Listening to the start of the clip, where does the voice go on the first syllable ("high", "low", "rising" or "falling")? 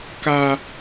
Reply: high